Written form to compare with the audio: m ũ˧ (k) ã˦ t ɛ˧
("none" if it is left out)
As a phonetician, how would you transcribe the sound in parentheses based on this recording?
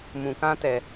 k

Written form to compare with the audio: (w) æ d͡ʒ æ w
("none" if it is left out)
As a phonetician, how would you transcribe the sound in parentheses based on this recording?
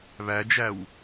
β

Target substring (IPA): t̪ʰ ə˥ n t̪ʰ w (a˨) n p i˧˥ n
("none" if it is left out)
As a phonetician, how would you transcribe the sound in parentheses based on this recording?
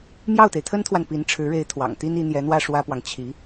a˨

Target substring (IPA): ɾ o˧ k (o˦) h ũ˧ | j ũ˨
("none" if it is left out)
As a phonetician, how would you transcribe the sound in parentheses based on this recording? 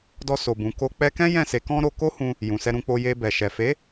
o˦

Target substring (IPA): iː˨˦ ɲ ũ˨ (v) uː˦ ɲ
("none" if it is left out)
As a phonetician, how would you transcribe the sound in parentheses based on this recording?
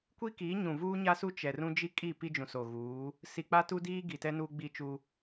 v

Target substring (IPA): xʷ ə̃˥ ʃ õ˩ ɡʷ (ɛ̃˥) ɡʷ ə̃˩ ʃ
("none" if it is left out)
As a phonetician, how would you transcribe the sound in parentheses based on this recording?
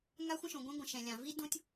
ɛ̃˥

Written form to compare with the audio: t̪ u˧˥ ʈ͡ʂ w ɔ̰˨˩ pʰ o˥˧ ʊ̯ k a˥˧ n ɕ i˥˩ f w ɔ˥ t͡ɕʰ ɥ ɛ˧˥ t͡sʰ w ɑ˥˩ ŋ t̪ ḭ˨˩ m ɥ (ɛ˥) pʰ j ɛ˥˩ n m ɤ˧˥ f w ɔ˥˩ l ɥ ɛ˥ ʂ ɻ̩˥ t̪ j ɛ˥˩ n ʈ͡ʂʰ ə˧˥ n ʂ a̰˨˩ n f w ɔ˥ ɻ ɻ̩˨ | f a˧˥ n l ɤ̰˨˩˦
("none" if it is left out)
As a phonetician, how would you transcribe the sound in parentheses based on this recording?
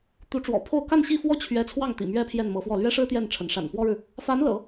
ɛ˥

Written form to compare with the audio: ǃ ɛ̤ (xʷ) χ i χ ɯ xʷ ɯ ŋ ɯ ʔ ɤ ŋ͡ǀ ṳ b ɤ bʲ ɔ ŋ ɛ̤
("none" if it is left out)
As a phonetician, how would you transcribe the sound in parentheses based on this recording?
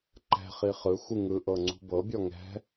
none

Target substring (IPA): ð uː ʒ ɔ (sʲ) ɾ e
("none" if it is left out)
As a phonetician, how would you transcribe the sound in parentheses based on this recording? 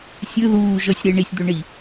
sʲ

